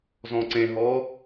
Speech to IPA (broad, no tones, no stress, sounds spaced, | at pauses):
z ɔ̃ ǀ ẽ ɦ ɔ